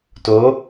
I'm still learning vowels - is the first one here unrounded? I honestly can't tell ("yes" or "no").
no